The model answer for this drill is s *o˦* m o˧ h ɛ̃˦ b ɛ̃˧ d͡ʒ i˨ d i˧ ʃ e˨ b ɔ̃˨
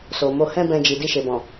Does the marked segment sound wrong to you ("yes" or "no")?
yes